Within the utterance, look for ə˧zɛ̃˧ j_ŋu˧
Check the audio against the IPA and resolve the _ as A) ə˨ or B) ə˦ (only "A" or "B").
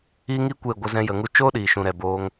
A